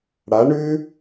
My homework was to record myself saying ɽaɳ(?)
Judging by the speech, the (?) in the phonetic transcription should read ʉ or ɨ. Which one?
ʉ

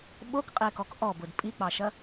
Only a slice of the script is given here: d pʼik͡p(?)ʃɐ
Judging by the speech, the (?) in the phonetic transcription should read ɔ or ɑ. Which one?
ɑ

